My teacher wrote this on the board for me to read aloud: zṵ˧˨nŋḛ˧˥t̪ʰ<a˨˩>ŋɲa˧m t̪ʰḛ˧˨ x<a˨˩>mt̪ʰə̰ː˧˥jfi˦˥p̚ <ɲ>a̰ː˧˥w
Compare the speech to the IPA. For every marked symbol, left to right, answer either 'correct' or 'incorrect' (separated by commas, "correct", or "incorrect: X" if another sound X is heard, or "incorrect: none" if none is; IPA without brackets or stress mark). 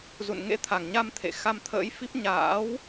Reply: correct, incorrect: a˧, correct